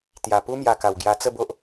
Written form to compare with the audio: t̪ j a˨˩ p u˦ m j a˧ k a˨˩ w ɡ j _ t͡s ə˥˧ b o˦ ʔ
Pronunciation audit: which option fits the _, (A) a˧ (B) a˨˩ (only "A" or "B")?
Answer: A